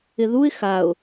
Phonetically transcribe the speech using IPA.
ɪ ð u ɪ̯ x a ʊ̯

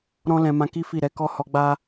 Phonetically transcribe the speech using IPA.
ɾ ɔ̃˦ l ɛ̃˧ m ã˧ k i˦ f i˦˨ ɾ ɛ˨˦ k ɔ˦ h ɔ˧ ɡ͡b a˦

